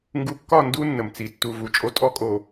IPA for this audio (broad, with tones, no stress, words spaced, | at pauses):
ŋɡu˨kːɒ˦˨ ndu˦ nːə˨mt͡si˨ tːu˨ vu˨˦t͡ʃʼo˦ tʼɔ˦kʼo˨